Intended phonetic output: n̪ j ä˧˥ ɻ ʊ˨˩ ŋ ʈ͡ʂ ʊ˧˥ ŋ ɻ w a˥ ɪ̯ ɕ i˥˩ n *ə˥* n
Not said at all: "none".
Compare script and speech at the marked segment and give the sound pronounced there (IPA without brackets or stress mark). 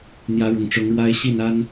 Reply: a˥